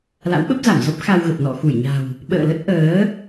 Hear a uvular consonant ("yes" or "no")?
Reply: no